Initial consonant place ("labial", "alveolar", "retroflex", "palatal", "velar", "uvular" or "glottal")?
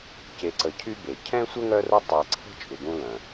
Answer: palatal